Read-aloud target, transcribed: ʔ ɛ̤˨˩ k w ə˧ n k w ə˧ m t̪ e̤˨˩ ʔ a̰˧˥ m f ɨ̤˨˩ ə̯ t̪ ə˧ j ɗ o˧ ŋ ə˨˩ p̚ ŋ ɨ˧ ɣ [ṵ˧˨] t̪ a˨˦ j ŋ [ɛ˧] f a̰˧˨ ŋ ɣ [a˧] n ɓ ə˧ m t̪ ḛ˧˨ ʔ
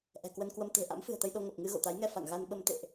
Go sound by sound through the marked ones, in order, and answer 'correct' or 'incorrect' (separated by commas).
incorrect, correct, correct